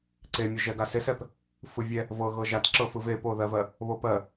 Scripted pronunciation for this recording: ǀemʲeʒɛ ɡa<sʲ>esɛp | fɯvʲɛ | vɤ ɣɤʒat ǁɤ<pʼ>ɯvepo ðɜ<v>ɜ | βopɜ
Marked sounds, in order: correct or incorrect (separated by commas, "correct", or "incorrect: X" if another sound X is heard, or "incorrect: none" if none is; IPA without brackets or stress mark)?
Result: incorrect: s, incorrect: f, correct